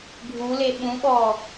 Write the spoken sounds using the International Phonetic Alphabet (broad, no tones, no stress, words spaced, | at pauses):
ɡʱule ɓũɓɔ